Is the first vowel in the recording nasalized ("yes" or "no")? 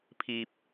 no